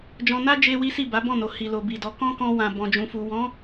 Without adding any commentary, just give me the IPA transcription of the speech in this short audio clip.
d͡ʒ ɔ̃˧ n a˦ d͡ʒ e˦ w i˦ s i˦˨ b a˨˦ b ɔ̃˦˨ n o˨ h i˨ l o˨ b i˨ d ɔ˨˦ k ɔ̃˦ k ɔ̃˧ w ã˨ b ɔ̃˨ d͡ʒ ũ˨ f u˨ w ɔ̃˨˦

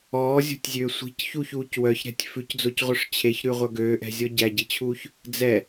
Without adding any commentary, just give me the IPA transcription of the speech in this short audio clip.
ɔː zʲ o̤ tʲ zʲ øː sʷ i̤ c ç u ç uː c w œ ç ɾ ɛ̤ tʲ f ʉ c d͡z o c ʁʷ œ ʂ t͡ɕʰ e ç ɾ ʉ ʁʷ œ ɡ øː ʔ ɛ̤ zʲ ɔ ɟ æ ɟ i t͡ɕʰ uː ç | d͡z ɛ

